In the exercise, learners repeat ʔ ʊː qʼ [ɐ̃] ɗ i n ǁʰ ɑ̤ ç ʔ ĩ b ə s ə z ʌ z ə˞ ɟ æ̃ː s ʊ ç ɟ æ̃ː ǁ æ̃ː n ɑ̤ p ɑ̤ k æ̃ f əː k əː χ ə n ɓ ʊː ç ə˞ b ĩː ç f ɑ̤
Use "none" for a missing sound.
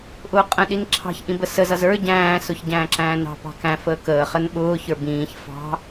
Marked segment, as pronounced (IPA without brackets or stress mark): ə̃